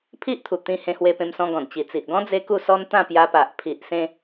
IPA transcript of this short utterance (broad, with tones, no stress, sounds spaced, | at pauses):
pʰ i˦ ʔ t̪ʰ u˨˩ t̪ ĩ˧ h ẽ˧ h w e˧ p ẽ˧ m s ɔ̃˧ ɡ ɔ̃˨˩ n t͡ɕ i˨˩ t͡s i˨ ʔ ɡ ɔ̃˦ d͡z e˦ k u˥˧ s ɔ˦ n t̪ ã˥˧ p j a˧ p a˨ ʔ pʰ i˨ ʔ s ẽ˧